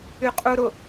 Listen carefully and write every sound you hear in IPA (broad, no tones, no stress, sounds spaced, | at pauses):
y qʼ u ɾ ʊ